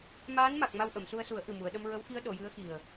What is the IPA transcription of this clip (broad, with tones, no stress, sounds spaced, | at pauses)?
m aː˧˥ n m a˨˩ k̚ m a˧ w ʔ ə˨˩˨ m s u˧ ə̯ s u˨˩˦ ə̯ ʔ ɨ˨˩ m u˨˩˨ ə̯ ɗ ə˧ m ɹ ə˧˥ w x i˧˥ ə̯ ɗ o˨˩˨ j ɨ˧˥ ə̯ x i˨˩ ə̯